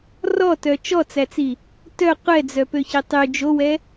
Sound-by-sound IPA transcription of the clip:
r ɔ t œ t͡ʃ ɔ t͡s æ t͡s i | t œ qʷ ɛ d͡z œ p ø ç i tˤ y d͡ʒ o w ɛ

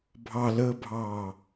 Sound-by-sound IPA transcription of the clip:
bʱ ɑ l əː bʱ ɑː

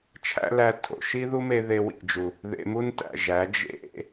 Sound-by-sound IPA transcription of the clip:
t͡ʃʰ æ̰˦ l æ˧ tʰ o̰˨ ʃ i˦ ð u˦ m e˧ ð e˧ w ḭ˨ d͡ʒ u˨ | ð ḛ˧ m u˦ n t æ̰˨ ʒ æ˨˦ d͡ʒ ḛ˦

